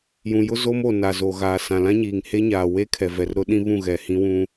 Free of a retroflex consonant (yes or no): yes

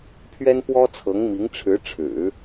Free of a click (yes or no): yes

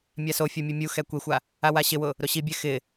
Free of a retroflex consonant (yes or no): yes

